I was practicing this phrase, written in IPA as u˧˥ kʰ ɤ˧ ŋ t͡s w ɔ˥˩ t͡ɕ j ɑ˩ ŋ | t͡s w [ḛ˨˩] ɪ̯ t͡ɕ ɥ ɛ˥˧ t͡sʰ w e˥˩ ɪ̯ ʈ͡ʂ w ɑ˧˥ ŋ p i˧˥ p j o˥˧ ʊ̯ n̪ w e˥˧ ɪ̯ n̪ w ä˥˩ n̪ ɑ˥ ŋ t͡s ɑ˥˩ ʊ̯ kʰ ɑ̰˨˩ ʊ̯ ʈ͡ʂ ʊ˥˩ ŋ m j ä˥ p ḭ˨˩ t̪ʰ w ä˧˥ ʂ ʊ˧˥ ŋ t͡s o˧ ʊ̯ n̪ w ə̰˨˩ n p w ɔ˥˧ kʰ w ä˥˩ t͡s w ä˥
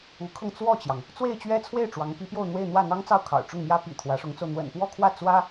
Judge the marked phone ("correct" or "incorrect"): incorrect